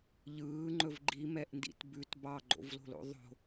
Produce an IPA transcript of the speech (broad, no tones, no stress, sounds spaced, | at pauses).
ʎ ɯː ŋ͡ǃ ɵ v ɡ͡ǃ i m ɛ ʔ n d ḭ t b ʉ t b ɑ ɡ͡ǃ o̰ v l o̤ l o̰ ðˤ o̤